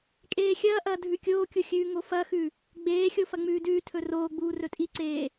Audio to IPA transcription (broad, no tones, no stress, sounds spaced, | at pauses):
kʼ eː xʲ ɐː ʔ ɐː dʱ ʉ kʲ oː kʲ u xʲ ʉː ŋ o f ɐ x ʉ | ɡ͡b eː xʲ o f ɐ ŋ͡m ʉː d ʉː tʰ ɵ r oː ɡ͡b uː r ɵ tʼ i ǀ eː